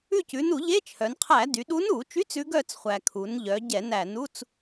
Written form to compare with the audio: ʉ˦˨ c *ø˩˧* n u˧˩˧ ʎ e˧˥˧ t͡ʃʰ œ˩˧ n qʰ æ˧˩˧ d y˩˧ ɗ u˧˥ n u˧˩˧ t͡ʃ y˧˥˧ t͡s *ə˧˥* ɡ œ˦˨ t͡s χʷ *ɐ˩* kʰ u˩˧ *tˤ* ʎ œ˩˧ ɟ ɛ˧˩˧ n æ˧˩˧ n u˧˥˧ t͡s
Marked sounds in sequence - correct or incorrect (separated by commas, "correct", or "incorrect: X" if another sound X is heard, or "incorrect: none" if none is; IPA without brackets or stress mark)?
incorrect: ʉ˩˧, incorrect: ʉ˧˥, incorrect: æ˩, incorrect: n